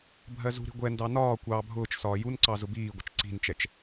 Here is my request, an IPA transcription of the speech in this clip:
bʱ ɜ z ṳ ɾ i̤ ɡʷ ɛ n d ɑ n ɒː kʷ ɑː bʱ ʊː t͡ʃ s ɒː j u n ǀ ɑ z ʊ b iː ɡʷ ɪ t͡ʃ ǀ i̤ n t͡ʃ ɛ t͡ʃ

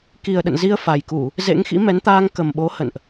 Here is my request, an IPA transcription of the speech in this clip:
k i˨˩ ə̯ ɗ ə̰˧˨ n z i˧ ə̯ f a˨˩ j k u˧˩˨ | z ḛ˧˥ ŋ x ḭ˧˥ m ɛ˨˦ n t̪ aː˧ ŋ k ə˨˩ m ɓ o˨˦ h ə̰˧˨ n ʔ

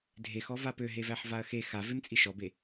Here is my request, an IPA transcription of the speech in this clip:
dʱ e x ɔ v a p ø ɦ e v æ ħ v a ɐ̯ x e x a v e m t͡sʼ i ʃ ɔ b e

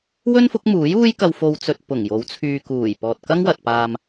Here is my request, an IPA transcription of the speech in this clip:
w ɵ˥ n f ʊ˨˥ k̚ m uː˨˥ j uː˥ j k ɐ˧ w f o˧ w t͡s ɵ˧ t̚ p ʊ˨˩ ŋ j o˨˥ w t͡sʰ yː˨ k uː˨˩ j p ɔː˨ t̚ k ɐ˥ ŋ w ɐ˨ t̚ p aː˧ m

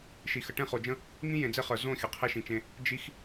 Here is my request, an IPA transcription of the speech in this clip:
ʃ i˨ x ə˨ ʈ ẽ˦˨ χ o˨ d͡ʒ ə̃˦ | ŋ ĩ˦ j ẽ˨ d͡z e˦ χ ə˞˨ z õ˦˨ xʲ ə˨ qʰ e˦ ʃ ĩ˨ t͡ʃ ẽ˦ | d͡ʒ i˦ x

